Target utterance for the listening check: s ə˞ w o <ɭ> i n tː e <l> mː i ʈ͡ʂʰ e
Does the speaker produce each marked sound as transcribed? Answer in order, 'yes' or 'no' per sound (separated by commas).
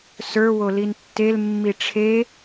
no, yes